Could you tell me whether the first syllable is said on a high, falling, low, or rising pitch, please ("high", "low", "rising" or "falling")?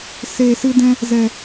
low